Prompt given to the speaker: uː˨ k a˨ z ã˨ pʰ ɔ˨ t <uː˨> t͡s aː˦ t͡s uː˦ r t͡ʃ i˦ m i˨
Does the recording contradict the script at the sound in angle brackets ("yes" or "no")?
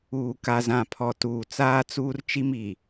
no